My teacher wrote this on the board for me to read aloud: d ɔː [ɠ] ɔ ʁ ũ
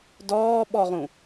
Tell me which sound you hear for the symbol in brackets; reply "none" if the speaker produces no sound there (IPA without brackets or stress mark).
ɓ